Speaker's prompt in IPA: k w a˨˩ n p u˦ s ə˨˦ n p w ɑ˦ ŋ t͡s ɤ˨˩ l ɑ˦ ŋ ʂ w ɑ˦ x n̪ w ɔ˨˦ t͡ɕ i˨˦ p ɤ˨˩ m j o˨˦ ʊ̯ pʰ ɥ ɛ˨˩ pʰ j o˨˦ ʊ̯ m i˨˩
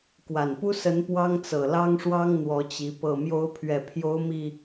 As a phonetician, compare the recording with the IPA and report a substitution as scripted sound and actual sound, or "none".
x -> ŋ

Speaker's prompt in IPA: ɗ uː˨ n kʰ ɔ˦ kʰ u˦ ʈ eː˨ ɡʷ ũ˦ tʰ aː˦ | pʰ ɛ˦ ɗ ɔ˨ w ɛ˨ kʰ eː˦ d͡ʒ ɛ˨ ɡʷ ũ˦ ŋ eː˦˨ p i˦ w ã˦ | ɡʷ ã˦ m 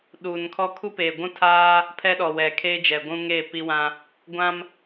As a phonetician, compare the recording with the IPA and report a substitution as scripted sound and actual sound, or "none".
ʈ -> p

